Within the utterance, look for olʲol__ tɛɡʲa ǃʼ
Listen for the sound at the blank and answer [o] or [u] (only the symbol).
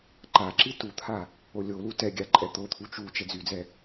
u